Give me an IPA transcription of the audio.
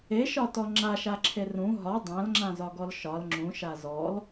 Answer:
e ʃ ɒ t ɔ ŋ͡ǁ a ʃ a ǁʰ e r ũ ɦ ɒ dˤ ã l ŋ͡ǁ ã z ɒ ɡ ɔ l ʃ ɒ l ŋ͡ǁ ũ ʃ a z ɔ l

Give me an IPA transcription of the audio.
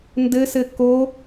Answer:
n d ɘ s ɘ k o

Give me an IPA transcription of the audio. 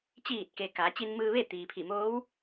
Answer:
t͡ɕ iː˧˩ t̚ k e˩ k a˩˧ t͡ɕ i˧ n m ɯː˧ ʋ e˥˨ t̪ iː˩ pʰ i˧˩ m oː˧˥ w

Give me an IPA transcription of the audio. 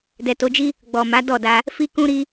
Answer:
d ɛ˨ t o˨˦ d͡ʒ i˦ | ɡ͡b ɔ˨ m a˨˦ d ɔ˦˨ d a˧ | f i˦ k ũ˦ ɾ i˦

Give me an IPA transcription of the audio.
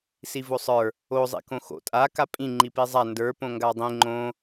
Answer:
s i v o sˤ ə˞ | o zˤ ḭ k õ x o̰ tʼ a k a pʼ ĩ ŋ͡ǃ i p i zˤ a n d ə˞ p õ ŋ ɡ a dˤ ĩ ŋ͡ǃ õ

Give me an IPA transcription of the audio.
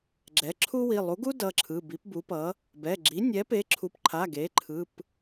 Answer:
ɡ͡ǁ ɛ˩˥ ǁʰ u˥ w i˩˧˩ lˠ u˩˥ ɡ u˥ d ʌ˩˧˩ ǁʰ ɯ˩˧˩ b i˩˥ p b u˩˥ p ʌ˩˥ | b ɛ˩˧˩ ɡ͡ǁ i˩˥ nʲ ɛ˩˥ p e˩˥ ǁʰ u˩˥ p ǃʰ a˩˧˩ ɡ e˩˥ ǃʰ ɯ˩˧˩ p

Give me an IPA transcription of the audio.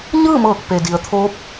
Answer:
ɲ ɯː˥˨ m ɤː˧˩ k̚ p e˩ d i˩ ə̯ t̪ʰ oː˧˥ p̚

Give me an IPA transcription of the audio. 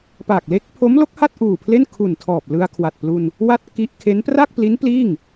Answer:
p a˨˩ k̚ l e˦˥ k̚ pʰ o˦˥ m l o˦˥ k̚ h a˥˩ t̚ ʔ uː˨˩ pʰ l e˥˩ n kʰ u˨˩ n tʰ ɔː˨˩ p̚ l ɯ˧ a̯ kʰ w a˨˩ t̚ p l u˧ n | w a˥˩ t̚ k i˦˥ ʔ kʰ e˦˥ n p r a˥˩ k̚ p l i˦˥ n p l iː˥˩ ŋ

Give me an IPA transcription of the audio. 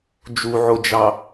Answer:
d͡ʒ u ʕ o d͡ʒ ɑ

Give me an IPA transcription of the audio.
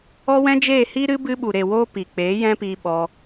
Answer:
ɔ˦ w ɛ̃˦ d͡ʒ eː˦˨ h i˦ ɾ ɨ˦ b ɨ˧ ɓ u˨ ɾ e˨ w oː˧ p i˨ k͡p eː˨˦ j ɛ̃˦ p iː˧ ɓ ɔ˧

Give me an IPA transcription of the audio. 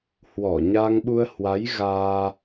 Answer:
h w ɔ˧˩ ɲ a˧ ŋ ɓ u˧ ə̯ h w a˨˦ j ɣ aː˧

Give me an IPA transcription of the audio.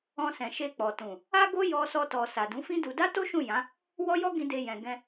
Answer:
ɔ̃˧ s ɛ̃˨ ʃ e˧ k͡p ɔ˨ t ũ˨ | a˦ ɡ o˦ j ɔ˧ s ɔ˧ t ɔ˨ s a˨ d ũ˨˦ f ĩ˦ d u˧ d a˦ t o˦ ʃ ũ˦˨ j ã˨˦ | w ɔ˦ j ɔ˦ ɡ ĩ˧ d e˧ j ɛ̃˨ ɡ ɛ̃˧

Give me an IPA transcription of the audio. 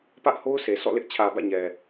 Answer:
p ä˦ ʔ h o˦ ʊ̯ sʰ e˨ s ɔ̰˦˨ l ɪ˦ ʔ t͡ɕʰ ä˨ b ä̰˦˨ ɲ ɛ˨

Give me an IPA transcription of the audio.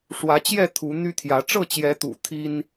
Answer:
ʂ w ä˨˦ t͡ɕ j ɛ˥˨ t̪ʰ u˨˦ n̪ y˦ t̪ʰ j ä˨˦ ʈ͡ʂ ɤ˥˨ t͡ɕ j ɛ˨˦ t̪ ṵ˨˩ t̪ʰ i˦ n

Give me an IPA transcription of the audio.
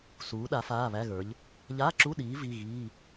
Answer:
s uː˨˦ ɗ a˨˦ f aː˧˥˧ β æ˧˥˧ ɣ ə˞˨˦ ʎ | ʎ a˧˥˧ ǁ u˧˥˧ ɗ iː˨˦ v i˧˥˧ ɣ iː˧˥˧

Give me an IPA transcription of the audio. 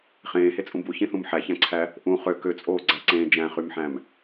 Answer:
χ ẽː h e t͡sʼ ũ b u ç ĩ θ ũ m ħ æ ç æ̃ ǀʰ æ | ʔ ũ χ ø k ø t͡sʼ oː ɡ͡ǀ æ ǀ ẽː d͡ʒ æ̃ χ y m ħ æ̃ m

